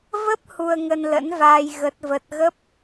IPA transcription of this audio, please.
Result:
v ə˦˥ p̚ h u˧ ə̯ ŋ ə˧ n l ə̰˧˥ n v aː˧ j ɣ ə˦˥ t̚ v ə˦˥ t̚ ɣ ə˦˥ p̚

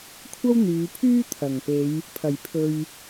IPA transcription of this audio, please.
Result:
kʷʰ ɐ˥ w n̪ yː˨˧ pʰ yː˥ t̪ʰ ɐ˨˩ ŋ p e˨˧ j | pʰ ɐ˨˩ j pʰ ɵ˨ ɥ

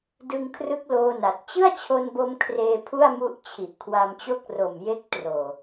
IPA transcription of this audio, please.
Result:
d ɯ˧ ŋ kʰ r ɯ˦˥ k̚ l oː˧ n a˨˩ t̚ t͡ɕ ɯ˥˩ a̯ t͡ɕʰ o˧ n b o˧ m kʰ r eː˧ pʰ u˥˩ a̯ m u˦˥ ʔ t͡ɕʰ i˨˩ ʔ kʰ w a˧ m t͡ɕ o˥˩ k̚ r o˨˩ m j e˦˥ k̚ t r oː˨˩

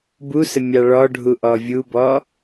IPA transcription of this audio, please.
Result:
b u s ə mʲ ɑ ɭ ɔ ɖʱ u ʔ ɔ vʲ u b ɔ

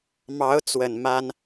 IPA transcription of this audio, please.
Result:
m ɑ˧˥ ʊ̯ t͡s w ə˨˩ n m a˥ n

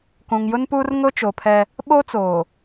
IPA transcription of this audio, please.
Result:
k ũ˨ ŋ j ʊ˦ n p uː˦ r ŋ ʊ˦ t͡ʃ o˨ pʰ ɛ˦ | ɓ o˦ t͡s oː˨

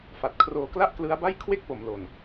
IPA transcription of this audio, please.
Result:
f a˨˩ t̚ kʰ r oː˧ k l a˥˩ ʔ k l ɯ˦˥ a̯ b a˥˩ j kʰ w e˥˩ k̚ p o˨˩ m l o˨˩ n

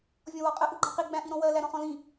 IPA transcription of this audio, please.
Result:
vʲ ɔ̃ w ɒ qʼ ə ʔ u ɡ͡ǃ ɑ̃ q i ɡ͡b æ̃ ʔ i ɾ ɔ̃ w ɜ l æ ɾ ɔ̃ χ ɔ̃ l ĩ

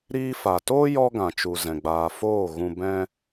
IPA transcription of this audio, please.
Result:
ɾ iː˧ f a˨ t oː˦ j ɔ˦ ɡ ã˨ t͡ʃ u˨ z ɛ̃˨ ɡ͡b aː˨ f oː˦˨ ɣ ũ˧ b ɛ̃˦

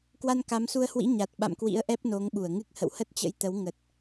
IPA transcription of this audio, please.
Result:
k w a˧ n k a˨˦ m s u˧ ə̯ h w ḭ˧˥ ɲ a˨˩ t̚ ɓ a̰˧˨ m k w ḭ˧˥ ə̯ ʔ ɛ˦˥ p̚ n o˨˦ ŋ ɓ u˧˩ ə̯ ŋ ɨ˦˥ k̚ h ə̰˧˨ w h ə˦˥ t̚ t͡ɕ ə̰˧˥ j t̪ ə˨˦ w ŋ ə˨˩ t̚

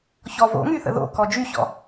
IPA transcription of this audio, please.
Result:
ç ɔ v o̰ ŋ y θ ə̰ ð o̰ k ɔ d͡ʒ y ç ɔ̰

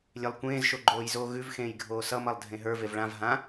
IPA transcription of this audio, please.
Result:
lʲ e lˠ kʷ ẽː z ʃ o ɡ͡ǃ oː j z oː ɣ ʉ v x ẽː j ɡʱ oː s ʌ m ʌ lˠ dʱ ẽ ɦ ə˞ v e v ɭ ã v ɦ ã

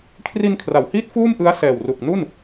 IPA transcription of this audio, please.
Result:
kʰ r i˧ n kʰ r a˩˦ w h iː˦˥ t̚ f uː˥˩ m ʔ ɯ˦˥ a̯ s ɛː˨˩ w r u˨˩ k̚ n u˥˩ n

